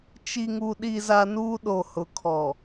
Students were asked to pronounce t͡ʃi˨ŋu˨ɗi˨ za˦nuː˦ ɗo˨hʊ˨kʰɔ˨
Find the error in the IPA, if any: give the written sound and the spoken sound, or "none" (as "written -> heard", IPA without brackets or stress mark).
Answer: none